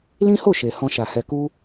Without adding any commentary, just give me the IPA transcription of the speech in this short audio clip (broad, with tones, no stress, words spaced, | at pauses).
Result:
lĩ˦ho˦˨ʃe˨ hɔ̃˧ʃa˨hɛ˧ku˦